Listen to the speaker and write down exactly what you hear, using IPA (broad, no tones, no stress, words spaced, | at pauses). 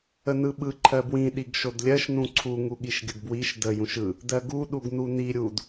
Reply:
ənɯɓɯ ǃʰɜbwĩ ɗiɡʃodlʲɜʃ nũǀʰu ŋuɠiʃɡʲədbwiʃ də jũʃɯ | dɜɡu ɗuɡnuni ɾʲud